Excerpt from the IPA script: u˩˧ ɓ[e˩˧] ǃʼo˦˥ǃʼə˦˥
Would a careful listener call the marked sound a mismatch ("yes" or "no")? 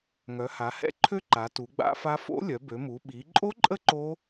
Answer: yes